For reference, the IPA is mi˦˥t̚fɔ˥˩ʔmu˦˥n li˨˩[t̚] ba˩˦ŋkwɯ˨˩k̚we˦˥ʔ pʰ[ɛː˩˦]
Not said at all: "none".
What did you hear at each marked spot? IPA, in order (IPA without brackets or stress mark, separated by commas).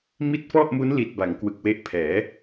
t̚, ɛː˩˦